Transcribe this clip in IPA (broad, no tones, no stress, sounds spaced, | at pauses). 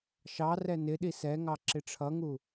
ʃ ɑ r ɛ n ɪ ɗ i s ɛ ŋ ɑ ǁ ɪ ʈ͡ʂʰ ʌ ŋ u